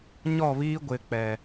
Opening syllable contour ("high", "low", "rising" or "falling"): falling